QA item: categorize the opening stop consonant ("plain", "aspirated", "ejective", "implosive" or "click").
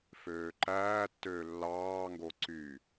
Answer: click